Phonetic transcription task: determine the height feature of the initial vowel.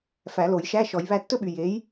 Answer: low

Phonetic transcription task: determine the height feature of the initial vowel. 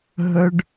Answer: mid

